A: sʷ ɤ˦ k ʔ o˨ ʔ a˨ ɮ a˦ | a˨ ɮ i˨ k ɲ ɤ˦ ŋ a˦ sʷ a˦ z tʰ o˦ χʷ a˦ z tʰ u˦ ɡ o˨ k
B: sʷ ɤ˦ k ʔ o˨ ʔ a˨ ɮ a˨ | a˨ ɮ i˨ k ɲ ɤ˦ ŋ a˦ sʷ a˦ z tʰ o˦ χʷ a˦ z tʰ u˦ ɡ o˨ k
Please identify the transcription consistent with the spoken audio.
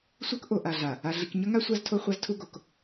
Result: B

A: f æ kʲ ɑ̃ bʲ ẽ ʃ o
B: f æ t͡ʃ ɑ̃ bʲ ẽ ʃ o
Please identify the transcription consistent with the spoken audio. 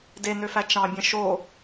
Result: B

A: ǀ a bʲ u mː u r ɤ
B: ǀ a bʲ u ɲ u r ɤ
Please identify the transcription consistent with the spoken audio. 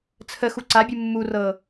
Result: A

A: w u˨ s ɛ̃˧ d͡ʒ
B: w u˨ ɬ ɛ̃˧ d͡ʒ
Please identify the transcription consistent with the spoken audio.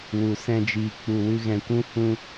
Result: A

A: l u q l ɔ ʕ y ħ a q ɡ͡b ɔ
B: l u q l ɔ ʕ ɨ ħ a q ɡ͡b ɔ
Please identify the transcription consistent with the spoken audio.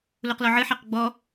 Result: B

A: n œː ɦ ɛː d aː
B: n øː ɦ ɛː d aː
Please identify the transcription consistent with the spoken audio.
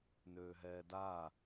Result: B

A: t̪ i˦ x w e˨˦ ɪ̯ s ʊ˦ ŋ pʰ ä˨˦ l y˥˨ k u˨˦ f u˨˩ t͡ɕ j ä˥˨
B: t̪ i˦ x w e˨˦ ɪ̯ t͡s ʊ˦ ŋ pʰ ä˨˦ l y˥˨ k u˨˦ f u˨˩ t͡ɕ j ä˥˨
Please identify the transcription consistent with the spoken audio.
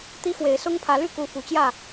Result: A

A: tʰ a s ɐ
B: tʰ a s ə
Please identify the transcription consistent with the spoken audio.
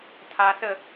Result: B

